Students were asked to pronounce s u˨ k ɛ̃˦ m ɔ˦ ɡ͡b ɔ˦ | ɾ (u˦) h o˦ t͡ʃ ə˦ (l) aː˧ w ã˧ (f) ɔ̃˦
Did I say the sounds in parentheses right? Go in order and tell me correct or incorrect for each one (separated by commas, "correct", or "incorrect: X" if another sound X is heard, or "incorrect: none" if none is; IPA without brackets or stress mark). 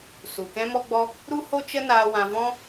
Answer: correct, incorrect: n, incorrect: v